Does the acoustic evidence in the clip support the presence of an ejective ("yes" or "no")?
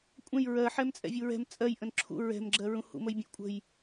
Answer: yes